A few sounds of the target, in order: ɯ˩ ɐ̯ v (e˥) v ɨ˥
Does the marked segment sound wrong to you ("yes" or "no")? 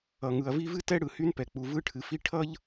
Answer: yes